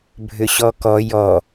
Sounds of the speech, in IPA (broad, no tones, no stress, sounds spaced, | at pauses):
bʱ ʏ ɕ ɔ k ɔ j ɔ